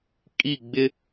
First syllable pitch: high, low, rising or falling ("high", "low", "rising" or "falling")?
falling